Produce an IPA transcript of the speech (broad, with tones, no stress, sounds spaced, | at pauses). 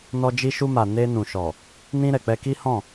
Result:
n ɔ˧ d͡ʒ i˧ ʃ u˧ m a˨ n e˧ n ũ˨ ʃ ɔ˨ | n ĩ˧ ɾ ɛ˨ k͡p ɛ˧ k i˦ h ɔ̃˦˨